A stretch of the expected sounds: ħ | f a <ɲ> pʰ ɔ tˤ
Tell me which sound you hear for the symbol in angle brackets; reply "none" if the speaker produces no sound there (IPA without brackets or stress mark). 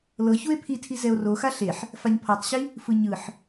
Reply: ɲ